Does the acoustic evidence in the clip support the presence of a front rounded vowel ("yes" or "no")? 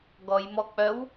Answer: yes